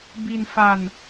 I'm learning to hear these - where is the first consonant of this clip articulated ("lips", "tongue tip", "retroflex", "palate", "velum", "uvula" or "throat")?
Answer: lips